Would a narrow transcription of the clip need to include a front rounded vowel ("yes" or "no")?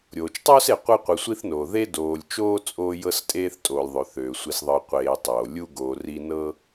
yes